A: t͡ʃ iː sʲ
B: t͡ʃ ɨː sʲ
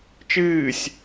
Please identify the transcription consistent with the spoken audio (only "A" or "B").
B